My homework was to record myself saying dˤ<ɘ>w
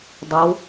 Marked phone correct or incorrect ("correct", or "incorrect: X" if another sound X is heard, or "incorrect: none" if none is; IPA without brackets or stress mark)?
correct